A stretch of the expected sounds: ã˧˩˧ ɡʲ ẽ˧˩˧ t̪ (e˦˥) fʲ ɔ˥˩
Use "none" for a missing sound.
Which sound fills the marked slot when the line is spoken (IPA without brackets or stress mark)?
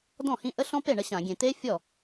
e˦˥